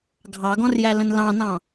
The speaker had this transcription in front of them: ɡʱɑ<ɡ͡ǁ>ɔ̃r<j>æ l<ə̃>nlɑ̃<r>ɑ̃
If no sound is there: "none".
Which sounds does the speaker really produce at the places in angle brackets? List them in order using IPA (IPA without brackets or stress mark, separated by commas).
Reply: ɡ, j, ə̃, n